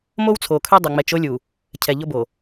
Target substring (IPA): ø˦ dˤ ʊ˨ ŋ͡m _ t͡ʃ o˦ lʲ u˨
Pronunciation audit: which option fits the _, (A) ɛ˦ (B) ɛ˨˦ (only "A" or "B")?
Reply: B